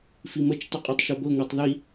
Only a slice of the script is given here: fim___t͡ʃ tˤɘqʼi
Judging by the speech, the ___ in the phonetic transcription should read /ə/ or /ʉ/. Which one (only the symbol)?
ə